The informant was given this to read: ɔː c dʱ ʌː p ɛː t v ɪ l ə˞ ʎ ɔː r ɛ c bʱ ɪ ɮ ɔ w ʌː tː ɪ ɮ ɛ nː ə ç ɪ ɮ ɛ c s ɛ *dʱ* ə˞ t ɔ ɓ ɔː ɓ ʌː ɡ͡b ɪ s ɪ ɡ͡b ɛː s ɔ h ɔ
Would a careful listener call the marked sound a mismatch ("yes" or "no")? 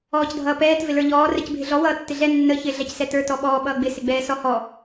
yes